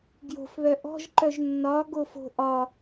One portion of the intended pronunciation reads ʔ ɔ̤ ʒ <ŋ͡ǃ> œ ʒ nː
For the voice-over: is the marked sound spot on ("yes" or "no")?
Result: no